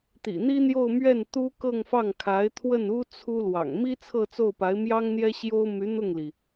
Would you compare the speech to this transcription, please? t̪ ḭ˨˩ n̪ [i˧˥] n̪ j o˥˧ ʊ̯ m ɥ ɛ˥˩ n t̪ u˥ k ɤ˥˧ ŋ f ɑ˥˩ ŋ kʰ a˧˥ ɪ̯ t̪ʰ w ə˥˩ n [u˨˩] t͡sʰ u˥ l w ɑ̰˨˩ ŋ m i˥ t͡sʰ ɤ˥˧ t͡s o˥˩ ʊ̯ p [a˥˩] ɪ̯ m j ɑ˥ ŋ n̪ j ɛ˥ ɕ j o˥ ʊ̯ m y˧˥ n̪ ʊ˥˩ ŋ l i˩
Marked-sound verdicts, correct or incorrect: incorrect: i˥, incorrect: u˥, incorrect: a˧˥

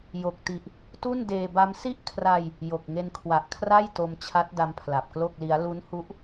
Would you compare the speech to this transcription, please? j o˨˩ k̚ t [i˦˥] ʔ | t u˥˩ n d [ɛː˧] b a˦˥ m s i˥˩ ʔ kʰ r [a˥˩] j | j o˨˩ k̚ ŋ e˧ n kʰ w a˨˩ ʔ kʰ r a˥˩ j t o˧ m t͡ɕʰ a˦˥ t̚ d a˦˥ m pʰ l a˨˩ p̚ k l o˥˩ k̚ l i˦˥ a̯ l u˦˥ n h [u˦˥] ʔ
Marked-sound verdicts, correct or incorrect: incorrect: i˨˩, incorrect: eː˧, incorrect: a˧, correct

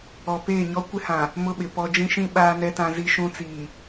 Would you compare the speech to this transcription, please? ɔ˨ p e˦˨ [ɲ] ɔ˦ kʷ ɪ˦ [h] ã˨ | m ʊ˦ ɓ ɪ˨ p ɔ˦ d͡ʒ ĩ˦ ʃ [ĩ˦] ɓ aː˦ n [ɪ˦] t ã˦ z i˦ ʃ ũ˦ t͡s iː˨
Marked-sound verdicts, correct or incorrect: correct, correct, correct, incorrect: ɛ˦

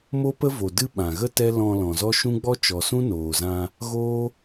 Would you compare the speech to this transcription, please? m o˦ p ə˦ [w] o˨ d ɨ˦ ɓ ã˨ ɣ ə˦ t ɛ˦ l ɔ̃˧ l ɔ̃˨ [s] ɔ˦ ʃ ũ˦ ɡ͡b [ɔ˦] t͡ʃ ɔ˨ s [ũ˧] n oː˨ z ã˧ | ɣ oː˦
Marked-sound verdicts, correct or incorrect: incorrect: v, incorrect: z, correct, incorrect: ũ˦

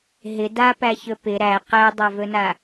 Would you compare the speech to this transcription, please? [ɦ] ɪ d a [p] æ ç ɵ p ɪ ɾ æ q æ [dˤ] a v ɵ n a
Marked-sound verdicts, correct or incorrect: correct, correct, correct

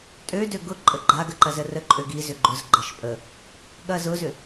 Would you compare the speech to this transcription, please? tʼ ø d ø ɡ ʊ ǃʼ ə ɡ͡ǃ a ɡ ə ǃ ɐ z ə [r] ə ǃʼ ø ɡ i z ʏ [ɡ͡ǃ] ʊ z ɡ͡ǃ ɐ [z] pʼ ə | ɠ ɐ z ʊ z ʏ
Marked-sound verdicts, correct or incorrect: correct, correct, incorrect: ʃ

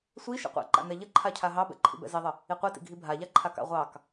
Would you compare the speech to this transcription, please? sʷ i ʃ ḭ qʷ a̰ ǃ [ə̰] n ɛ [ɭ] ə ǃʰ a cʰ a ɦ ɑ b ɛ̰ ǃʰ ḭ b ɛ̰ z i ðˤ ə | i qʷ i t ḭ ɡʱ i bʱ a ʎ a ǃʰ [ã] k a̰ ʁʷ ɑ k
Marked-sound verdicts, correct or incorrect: incorrect: a̰, incorrect: ʎ, incorrect: a

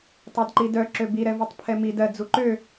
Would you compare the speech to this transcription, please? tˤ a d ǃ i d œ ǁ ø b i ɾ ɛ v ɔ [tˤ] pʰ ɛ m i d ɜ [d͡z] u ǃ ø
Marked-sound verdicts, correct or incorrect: correct, correct

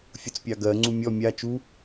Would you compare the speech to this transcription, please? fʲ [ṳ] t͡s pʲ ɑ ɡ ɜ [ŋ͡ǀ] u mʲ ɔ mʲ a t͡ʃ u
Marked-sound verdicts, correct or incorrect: incorrect: u, correct

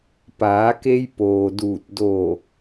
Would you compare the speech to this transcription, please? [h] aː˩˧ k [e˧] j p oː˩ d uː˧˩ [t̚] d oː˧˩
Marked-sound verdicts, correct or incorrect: incorrect: p, correct, correct

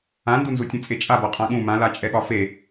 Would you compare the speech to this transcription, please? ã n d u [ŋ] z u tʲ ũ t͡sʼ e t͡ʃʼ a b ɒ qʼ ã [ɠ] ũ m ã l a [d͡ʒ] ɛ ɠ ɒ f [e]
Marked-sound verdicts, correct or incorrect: incorrect: n, correct, incorrect: t͡ʃʼ, correct

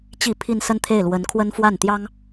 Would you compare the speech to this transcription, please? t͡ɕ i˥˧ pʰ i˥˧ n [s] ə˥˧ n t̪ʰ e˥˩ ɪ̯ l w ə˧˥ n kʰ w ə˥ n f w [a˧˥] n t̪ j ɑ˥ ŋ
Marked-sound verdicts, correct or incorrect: correct, incorrect: a˥˩

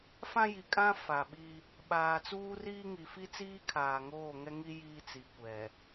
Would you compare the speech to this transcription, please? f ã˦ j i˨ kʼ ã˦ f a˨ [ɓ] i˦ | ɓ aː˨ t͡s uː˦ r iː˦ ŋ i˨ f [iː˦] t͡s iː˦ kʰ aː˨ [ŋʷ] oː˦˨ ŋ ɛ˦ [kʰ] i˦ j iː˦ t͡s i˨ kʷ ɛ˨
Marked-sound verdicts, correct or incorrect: correct, incorrect: i˦, incorrect: ŋ, incorrect: ŋ

